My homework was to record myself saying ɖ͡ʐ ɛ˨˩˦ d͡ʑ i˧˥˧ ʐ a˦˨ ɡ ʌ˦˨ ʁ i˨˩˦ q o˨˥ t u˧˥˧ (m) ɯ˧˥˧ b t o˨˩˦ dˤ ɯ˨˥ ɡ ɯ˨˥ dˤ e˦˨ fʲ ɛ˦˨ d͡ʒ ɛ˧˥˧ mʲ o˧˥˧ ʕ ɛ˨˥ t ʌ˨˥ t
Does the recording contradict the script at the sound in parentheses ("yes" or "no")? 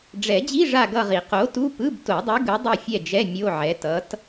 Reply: yes